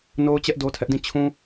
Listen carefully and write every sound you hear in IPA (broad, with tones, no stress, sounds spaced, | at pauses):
n o˦ ʊ̯ t͡ɕ ɛ˦ ʔ d o˦ tʰ ɛ˦ ʔ d ĩ˦˨ t͡ɕʰ ũ˦